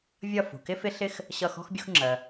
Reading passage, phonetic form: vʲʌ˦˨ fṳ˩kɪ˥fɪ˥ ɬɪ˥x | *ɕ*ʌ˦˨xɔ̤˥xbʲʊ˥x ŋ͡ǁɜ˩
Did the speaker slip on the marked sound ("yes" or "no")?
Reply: no